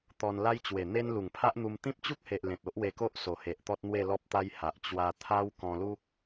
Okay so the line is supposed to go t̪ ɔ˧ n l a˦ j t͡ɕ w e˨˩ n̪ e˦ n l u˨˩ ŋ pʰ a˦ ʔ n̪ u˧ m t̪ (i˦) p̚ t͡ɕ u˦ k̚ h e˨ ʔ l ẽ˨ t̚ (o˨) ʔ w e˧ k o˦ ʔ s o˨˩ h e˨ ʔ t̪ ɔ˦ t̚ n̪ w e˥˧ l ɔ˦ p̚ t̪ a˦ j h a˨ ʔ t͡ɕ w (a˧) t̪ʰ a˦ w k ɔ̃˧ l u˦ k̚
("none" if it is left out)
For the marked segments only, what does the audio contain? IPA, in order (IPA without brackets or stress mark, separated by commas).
ĩ˦, o˦, a˧